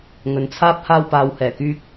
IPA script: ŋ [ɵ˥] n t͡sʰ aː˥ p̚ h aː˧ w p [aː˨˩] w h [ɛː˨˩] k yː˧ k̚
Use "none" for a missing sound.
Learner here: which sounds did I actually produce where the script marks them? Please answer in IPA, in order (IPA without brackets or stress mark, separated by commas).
ɵ˨, aː˨, ɛː˨˩